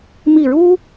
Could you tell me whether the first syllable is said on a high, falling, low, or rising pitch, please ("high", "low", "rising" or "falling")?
falling